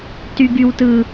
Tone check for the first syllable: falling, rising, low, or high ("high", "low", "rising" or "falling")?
high